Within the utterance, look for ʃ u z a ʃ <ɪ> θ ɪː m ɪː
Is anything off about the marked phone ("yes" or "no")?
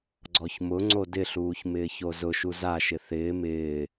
no